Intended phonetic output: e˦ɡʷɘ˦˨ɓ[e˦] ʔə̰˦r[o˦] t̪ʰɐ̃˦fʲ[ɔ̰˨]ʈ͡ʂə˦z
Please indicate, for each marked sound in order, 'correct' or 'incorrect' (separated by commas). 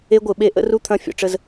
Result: correct, incorrect, correct